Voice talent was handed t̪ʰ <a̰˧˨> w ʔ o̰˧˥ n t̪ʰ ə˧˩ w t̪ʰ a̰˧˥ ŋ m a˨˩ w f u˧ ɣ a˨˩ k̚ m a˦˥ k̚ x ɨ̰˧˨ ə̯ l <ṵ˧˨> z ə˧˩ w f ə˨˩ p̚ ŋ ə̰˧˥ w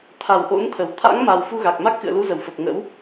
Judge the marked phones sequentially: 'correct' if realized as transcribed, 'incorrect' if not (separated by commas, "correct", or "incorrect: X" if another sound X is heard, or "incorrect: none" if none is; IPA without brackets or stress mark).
incorrect: a˧˩, incorrect: u˨˦